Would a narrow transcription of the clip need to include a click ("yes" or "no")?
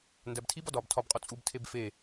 no